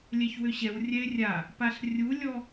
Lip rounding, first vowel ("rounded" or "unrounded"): unrounded